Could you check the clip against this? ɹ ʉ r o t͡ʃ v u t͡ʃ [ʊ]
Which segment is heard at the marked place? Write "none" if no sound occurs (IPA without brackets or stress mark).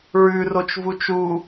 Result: u